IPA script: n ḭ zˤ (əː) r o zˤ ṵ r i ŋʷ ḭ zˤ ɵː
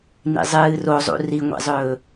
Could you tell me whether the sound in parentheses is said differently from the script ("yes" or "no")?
yes